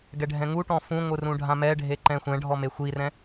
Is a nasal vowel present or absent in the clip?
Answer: present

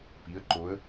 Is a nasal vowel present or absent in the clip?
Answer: absent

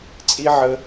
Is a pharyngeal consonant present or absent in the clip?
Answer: present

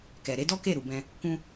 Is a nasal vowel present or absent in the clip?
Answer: present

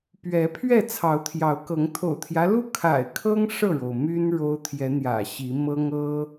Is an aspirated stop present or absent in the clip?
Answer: present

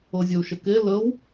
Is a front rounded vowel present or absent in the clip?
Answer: absent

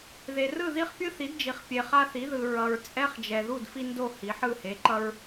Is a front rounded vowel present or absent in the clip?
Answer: absent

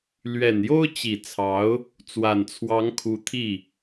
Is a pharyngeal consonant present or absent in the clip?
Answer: absent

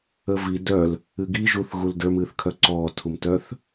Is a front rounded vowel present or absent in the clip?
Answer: present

